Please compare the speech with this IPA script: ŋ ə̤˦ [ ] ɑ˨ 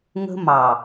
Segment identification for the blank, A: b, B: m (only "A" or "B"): B